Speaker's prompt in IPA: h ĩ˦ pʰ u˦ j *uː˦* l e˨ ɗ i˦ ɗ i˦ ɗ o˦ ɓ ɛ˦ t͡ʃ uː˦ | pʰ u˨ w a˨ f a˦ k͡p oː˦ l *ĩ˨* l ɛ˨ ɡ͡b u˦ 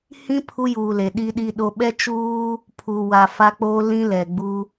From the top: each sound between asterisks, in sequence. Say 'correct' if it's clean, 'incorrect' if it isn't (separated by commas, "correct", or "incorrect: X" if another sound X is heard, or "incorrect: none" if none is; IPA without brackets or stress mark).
incorrect: uː˨, incorrect: ĩ˦